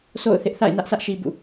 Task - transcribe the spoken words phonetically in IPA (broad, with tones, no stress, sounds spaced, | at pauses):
sʰ o̰˦˨ ʊ̯ θ ɪ˦ ʔ θ a̰˦˨ ɪ̯ n ä˦ ʔ s ä˦ ʔ ʃ i˨ b ṵ˦˨